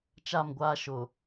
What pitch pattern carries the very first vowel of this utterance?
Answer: falling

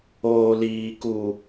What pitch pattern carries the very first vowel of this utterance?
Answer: low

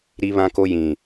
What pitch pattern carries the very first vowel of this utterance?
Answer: high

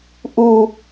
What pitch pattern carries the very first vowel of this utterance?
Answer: high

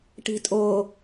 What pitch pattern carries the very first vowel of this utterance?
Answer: low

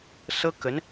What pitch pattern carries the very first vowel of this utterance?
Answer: high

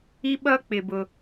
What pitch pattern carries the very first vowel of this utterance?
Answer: high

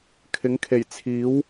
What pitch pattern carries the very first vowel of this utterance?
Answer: rising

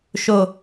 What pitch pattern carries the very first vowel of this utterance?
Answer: low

